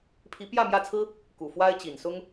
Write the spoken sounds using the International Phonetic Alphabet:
pʰi˧˥pjä˥˧ mjä˥˩t͡sʰɹ̩˥ | ku˨˩ fwa˥ɪ̯t͡ɕi˨˩nsʊ˥ŋ

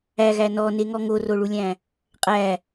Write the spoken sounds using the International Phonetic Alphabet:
æɣæ nɔneŋɔ ŋoroɭulʲæ̃ | qʼæ

